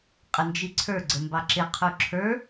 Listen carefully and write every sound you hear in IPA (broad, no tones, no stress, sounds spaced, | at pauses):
qʼ ə n d͡ʒ i ǀʰ ə˞ ɡ͡ǀ ə m b ɑ ǁ ɪ qʰ u ǁʰ ə˞